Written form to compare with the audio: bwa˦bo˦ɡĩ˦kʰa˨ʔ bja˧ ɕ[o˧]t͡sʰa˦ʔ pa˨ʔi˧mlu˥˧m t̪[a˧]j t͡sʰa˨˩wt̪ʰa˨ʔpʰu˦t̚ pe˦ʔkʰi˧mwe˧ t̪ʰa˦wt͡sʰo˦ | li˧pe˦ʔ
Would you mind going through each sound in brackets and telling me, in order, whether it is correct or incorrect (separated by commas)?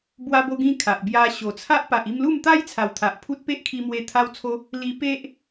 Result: incorrect, incorrect